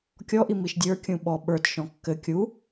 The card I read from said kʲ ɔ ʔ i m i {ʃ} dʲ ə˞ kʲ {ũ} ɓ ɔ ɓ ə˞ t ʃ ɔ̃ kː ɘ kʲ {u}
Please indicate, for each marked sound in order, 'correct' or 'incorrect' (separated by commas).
correct, correct, correct